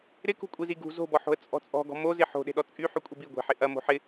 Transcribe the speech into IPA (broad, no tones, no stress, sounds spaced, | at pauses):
ɾ ɪ k ṳ kʷʼ i z i ɡ ṳ z o̤ b ɔ ħ o̤ ə̯ t͡sʼ ɔ̤ t͡sʼ ɔ̤ ɡ ɔ̤ m o z ɪ ħ o̤ ɗ e̤ ɗ ɔ t͡sʼ y ħ y kʷʼ e b i ɡʷ e̤ ħ ɪ ʔ ɐ m o̤ ħ ɪ